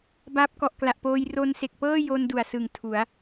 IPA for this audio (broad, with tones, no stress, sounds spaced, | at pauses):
b aː˦˥ p̚ k ɔ˨˩ ʔ k l a˨˩ ʔ p oː˧ j r o˧ n s e˨˩ k̚ p ɤː˥˩ j o˧ n d u˨˩ a̯ s ɯ˨˩ ŋ tʰ u˩˦ a̯